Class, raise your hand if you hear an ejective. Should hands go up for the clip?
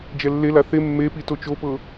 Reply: no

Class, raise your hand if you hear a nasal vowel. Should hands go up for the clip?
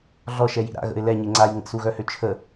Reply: no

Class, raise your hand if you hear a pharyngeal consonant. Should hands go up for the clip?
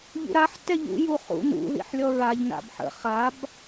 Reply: yes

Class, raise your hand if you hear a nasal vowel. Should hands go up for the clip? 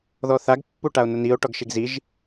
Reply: no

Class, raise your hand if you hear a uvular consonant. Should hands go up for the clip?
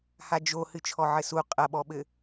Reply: yes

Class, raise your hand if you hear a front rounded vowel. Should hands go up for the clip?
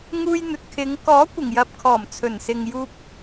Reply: no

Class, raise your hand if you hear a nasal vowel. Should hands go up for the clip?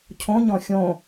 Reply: yes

